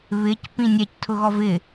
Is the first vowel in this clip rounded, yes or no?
no